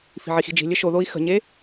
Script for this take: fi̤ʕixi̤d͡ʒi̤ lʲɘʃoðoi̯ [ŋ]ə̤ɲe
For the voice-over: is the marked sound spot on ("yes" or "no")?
no